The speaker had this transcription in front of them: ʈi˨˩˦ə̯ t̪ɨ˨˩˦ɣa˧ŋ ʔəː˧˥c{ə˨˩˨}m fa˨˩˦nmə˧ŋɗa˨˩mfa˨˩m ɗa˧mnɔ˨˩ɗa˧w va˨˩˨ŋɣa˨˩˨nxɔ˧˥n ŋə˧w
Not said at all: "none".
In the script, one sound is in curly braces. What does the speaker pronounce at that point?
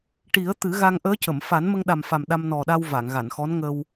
ə˨˩˨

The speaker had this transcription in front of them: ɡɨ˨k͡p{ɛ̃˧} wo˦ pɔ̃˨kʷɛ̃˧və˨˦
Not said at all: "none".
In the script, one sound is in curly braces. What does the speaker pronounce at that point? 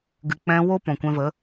ɛ̃˧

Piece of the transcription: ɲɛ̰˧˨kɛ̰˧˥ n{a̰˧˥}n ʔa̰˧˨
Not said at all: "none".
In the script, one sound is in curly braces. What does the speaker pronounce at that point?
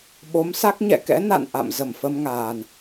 a̰˧˨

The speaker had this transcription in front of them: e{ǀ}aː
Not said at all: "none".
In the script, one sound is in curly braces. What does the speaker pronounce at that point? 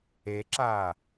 ǁ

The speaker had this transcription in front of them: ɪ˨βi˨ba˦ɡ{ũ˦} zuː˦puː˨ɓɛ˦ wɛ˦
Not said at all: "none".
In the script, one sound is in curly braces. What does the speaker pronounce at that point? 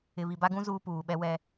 ũ˦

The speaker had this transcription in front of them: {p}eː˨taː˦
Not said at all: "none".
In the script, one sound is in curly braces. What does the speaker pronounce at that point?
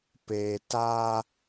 p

